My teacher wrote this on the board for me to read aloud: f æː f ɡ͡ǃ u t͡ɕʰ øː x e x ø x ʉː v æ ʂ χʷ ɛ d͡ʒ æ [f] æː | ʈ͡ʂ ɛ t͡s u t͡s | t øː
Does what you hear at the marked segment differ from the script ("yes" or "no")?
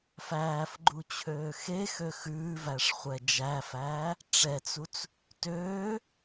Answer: no